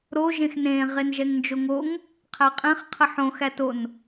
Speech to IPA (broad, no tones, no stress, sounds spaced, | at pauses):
ɾ o ʒ ẽ x n ẽ ʁ e n ʒ ɛ ŋ n d͡ʒ o ŋ o ŋ | qʰ æ qʼ ɛ̃ χ qʰ ə ħ õ x æ t o n